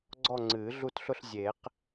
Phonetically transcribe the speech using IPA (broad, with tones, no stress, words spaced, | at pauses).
ɡ͡ǀɔ˥˧ŋ͡ǀɨː˨˩˦ɮu˥˧tɬʊ˥˧ɬ zʲe˨˩˦q